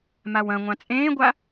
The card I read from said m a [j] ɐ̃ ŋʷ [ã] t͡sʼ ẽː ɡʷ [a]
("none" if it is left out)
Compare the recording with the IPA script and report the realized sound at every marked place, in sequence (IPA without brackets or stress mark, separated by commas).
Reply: w, ã, a